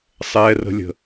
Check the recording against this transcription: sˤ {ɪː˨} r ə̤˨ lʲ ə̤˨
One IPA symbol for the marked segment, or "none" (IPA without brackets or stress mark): ɛː˨